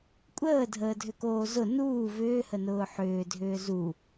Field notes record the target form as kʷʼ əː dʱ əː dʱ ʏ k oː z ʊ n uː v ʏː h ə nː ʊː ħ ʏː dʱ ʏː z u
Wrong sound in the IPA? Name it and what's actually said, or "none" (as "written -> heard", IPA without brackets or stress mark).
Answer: nː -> n